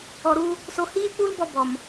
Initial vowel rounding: rounded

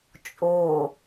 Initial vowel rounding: rounded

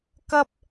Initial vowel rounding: unrounded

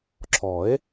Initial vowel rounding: rounded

